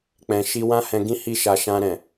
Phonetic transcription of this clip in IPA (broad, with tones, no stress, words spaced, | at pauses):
k͡pɛ̃˨ ʃi˧wã˦hɛ̃˧ɡĩ˦ hi˦ʃa˧ ʃã˧ɾɛ̃˨